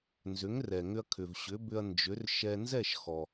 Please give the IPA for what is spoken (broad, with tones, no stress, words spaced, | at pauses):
nzʏ˩˥ŋrɛ˩ŋʏ˧ɐ̯ kʰʏ˩vɕʏ˩˥bʏ˧ɐ̯ nd͡ʒʏ˩˥r ʃɛ˧ nzɛ˥˩ʃxɔ˩